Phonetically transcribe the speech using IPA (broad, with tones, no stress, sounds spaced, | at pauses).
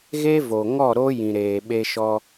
ɣ e˦ v o˨ ŋ ɔ˦˨ ɾ o˦ j ĩ˨ ɾ eː˨ ɓ e˧ ʃ ɔ˧